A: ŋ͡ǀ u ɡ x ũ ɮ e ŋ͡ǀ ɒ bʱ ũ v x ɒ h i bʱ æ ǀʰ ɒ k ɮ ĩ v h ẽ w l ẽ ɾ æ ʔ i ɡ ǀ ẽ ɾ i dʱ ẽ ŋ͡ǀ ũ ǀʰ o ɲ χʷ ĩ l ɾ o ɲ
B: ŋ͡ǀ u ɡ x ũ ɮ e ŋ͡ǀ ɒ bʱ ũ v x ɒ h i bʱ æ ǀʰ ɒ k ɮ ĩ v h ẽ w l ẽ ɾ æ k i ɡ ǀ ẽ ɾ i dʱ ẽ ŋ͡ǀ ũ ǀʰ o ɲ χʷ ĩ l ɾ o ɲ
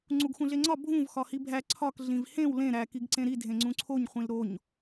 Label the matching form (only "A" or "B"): B